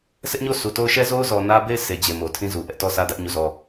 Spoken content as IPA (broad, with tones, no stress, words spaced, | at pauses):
sʰɛ˦ʔɲo˦ sʰu˨to˦ʊ̯ ʃɛ˦zo˦ʊ̯ zɔ˨ nä˦be˦˨ɪ̯ sʰe˨ d͡ʑe˨mo˨tʰĩ˦zu˨ ʔɛ˦ʔtɔ˦˨sä˦dä˦ʔ ɲu˦˨zɔ˦˨